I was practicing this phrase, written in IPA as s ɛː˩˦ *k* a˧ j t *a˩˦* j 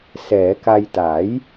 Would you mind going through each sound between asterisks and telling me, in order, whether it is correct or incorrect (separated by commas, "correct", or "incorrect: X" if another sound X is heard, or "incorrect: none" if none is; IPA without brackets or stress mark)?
correct, correct